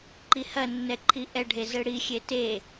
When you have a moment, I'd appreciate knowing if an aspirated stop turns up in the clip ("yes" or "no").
yes